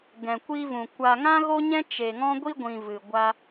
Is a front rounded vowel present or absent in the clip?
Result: absent